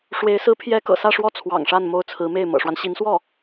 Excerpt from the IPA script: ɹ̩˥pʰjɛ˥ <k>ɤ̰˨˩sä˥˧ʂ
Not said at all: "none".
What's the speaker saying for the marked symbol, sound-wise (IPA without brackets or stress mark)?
k